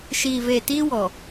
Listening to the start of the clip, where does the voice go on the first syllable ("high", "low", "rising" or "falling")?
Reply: low